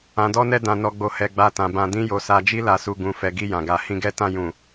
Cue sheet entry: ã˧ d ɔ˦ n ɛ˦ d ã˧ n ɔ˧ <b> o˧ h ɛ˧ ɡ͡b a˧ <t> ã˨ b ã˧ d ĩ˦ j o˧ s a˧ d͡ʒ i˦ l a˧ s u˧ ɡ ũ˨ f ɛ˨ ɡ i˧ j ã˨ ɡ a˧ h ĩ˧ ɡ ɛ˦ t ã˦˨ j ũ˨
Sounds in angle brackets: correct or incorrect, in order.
incorrect, correct

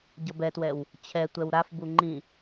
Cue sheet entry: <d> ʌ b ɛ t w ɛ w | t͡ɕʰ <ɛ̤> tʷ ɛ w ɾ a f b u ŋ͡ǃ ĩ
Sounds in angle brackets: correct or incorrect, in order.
incorrect, incorrect

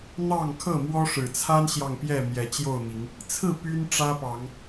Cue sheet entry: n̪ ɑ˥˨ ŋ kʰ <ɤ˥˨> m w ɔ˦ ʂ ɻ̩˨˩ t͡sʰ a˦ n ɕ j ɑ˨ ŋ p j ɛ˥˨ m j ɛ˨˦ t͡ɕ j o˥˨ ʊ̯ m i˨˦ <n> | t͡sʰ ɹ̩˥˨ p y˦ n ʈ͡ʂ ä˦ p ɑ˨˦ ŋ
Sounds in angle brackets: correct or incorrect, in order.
correct, incorrect

